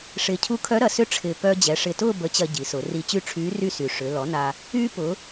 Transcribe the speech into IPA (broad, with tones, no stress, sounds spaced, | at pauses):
ʂ ɪː˨˩ cʰ u˧˥ kʰ œ˧˥ ɾ ɐ˩˧ s ʏ˧˥ ʈ͡ʂʰ ɪː˨˩ p œː˧ d͡ʑ ɛ˩˧ ʂ ɪ˨˩ t ʊː˥˨ b ə˧˥ t͡ɕ ɐ˧ ɟ i˩˧ s ʊ˩˧ r i˧ t͡ɕ y˥˨ ʈ͡ʂʰ yː˧˥ r y˥˨ s y˨˩ ʂ ʏ˩˧ l ɔ˩˥ n a˧ | yː˧ p ʊ˩˧